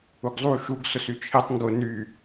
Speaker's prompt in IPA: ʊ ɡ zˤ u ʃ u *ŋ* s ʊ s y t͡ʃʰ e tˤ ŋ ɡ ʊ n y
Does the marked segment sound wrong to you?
yes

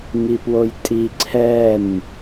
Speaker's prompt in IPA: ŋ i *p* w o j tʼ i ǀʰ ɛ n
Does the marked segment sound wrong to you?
no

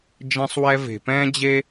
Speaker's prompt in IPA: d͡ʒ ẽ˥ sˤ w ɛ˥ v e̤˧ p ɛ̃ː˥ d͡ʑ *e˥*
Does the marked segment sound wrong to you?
no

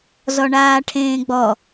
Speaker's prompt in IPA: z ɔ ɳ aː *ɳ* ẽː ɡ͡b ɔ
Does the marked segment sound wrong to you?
yes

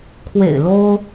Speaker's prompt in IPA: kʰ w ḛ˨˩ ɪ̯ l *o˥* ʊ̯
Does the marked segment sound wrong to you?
no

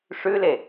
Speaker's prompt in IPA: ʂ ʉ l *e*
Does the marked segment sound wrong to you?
no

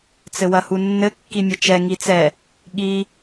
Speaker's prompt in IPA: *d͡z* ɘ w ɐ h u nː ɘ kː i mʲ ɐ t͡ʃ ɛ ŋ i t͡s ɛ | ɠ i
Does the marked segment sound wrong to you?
yes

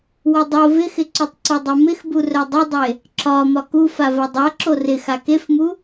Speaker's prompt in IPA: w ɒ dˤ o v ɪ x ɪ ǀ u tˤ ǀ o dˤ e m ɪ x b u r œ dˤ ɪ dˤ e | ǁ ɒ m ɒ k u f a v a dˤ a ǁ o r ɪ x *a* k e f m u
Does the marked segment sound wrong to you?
no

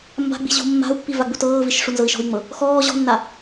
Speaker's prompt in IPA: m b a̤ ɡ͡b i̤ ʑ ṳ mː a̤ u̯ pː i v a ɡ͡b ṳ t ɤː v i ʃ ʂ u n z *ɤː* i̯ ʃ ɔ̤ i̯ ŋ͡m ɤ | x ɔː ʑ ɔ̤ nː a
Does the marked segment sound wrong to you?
yes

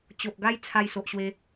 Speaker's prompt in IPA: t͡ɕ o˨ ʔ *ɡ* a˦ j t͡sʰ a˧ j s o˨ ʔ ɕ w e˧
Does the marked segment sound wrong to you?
no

